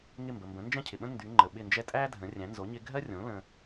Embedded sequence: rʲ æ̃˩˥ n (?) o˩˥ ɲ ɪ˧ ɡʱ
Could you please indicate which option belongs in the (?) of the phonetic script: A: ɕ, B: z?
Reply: B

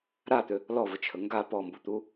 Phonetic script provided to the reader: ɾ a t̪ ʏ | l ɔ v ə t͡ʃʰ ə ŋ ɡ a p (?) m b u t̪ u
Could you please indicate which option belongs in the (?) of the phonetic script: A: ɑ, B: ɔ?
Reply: B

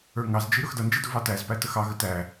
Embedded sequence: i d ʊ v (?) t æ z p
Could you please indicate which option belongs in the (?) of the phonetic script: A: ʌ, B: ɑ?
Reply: B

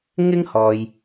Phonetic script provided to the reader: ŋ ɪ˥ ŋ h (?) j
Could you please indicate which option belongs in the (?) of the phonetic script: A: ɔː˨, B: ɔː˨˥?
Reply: A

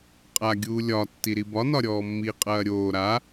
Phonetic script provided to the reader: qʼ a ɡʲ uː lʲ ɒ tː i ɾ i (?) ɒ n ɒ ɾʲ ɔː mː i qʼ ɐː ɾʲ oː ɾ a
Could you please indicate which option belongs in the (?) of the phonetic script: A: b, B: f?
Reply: A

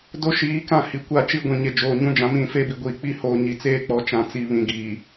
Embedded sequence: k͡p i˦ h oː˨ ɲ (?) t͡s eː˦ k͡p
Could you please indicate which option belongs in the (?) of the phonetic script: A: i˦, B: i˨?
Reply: B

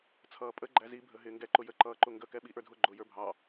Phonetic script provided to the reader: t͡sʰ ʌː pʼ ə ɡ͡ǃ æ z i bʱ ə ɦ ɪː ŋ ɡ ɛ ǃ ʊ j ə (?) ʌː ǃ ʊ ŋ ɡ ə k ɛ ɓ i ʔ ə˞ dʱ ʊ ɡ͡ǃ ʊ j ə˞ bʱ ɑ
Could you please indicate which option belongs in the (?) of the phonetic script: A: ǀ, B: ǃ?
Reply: B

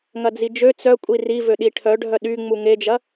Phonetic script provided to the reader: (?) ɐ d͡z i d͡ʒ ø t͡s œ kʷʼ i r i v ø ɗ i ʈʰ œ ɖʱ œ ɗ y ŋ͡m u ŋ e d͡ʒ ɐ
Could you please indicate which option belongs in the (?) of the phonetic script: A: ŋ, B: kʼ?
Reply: A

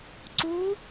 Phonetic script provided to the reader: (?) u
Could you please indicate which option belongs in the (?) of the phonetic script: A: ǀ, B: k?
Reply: A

